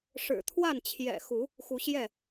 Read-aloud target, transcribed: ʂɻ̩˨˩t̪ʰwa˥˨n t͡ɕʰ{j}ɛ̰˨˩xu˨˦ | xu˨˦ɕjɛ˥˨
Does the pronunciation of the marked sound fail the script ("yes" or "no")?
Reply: no